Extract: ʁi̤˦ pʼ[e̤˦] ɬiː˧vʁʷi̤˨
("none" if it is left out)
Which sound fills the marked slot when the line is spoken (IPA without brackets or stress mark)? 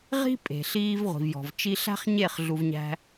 e̤˨